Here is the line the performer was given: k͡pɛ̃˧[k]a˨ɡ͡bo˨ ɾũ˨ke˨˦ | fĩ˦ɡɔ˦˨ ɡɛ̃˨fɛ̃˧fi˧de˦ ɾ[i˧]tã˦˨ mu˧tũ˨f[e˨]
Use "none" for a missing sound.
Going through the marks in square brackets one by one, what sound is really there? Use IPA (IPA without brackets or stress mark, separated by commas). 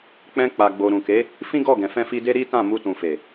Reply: k͡p, i˦, e˨